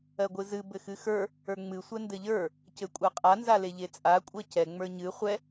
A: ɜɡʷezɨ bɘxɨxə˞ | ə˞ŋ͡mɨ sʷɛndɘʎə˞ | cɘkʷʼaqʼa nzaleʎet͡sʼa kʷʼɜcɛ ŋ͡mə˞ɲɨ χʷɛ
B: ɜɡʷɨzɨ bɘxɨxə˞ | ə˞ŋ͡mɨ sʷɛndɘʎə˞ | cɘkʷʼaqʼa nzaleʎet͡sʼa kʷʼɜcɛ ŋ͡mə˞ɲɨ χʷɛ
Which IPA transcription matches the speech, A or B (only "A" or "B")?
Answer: B